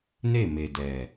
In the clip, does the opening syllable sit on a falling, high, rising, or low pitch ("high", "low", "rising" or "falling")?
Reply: falling